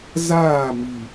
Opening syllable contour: falling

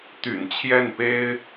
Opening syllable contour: low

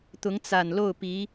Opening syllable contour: rising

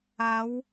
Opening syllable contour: rising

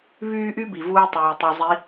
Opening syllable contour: high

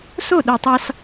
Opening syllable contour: falling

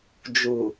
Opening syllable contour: low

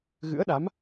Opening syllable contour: rising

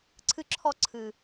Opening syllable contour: high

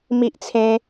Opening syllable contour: high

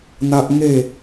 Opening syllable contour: high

